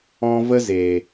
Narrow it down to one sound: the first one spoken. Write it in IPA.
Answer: ɔ̃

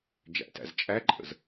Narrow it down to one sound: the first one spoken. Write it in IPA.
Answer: d͡ʒ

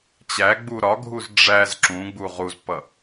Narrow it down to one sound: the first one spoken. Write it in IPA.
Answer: t͡ɕ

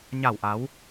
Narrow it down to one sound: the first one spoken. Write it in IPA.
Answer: ɲ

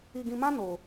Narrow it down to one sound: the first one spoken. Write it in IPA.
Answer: i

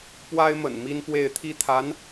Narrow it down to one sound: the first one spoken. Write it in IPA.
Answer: p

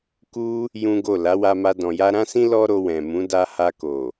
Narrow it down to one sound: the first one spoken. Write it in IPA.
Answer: k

